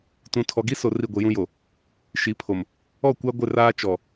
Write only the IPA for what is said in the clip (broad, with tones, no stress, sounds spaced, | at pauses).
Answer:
t ũ˨ tʰ ɔ˨ ɡ i˦ s o˨ r i˦˨ ɡʷ i˨ j ũ˦ j o˨ | ʃ i˨˦ pʰ o˨ m | ɔ˦˨ kʷ a˦ ɡʷ ɪ˦˨ r aː˦ t͡ʃ ɔ˨